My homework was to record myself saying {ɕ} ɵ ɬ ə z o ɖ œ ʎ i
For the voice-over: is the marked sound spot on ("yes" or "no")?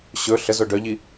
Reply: yes